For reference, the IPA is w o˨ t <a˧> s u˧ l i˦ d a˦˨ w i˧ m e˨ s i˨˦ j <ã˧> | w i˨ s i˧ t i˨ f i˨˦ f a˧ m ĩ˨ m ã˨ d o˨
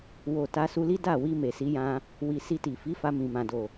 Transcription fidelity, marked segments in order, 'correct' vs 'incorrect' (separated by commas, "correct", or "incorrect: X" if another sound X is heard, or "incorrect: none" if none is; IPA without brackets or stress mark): correct, correct